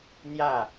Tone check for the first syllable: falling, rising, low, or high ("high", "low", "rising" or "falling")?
falling